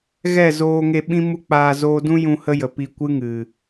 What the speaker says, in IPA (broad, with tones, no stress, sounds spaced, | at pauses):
ɣ ɛ˦˨ z oː˧ ŋ e˧ ɓ ĩ˦ m u˦ k͡p aː˧ z oː˧ d ũ˦ j ũ˧ h ə˦ j ə˨ p i˧ kʷ ɨ˦ ŋ ɨ˨